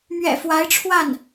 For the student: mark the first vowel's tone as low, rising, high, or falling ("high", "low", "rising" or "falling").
low